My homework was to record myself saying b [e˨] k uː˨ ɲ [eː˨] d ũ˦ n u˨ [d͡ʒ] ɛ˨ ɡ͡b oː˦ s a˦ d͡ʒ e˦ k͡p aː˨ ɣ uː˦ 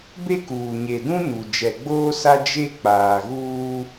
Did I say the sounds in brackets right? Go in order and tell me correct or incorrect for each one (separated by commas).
incorrect, incorrect, correct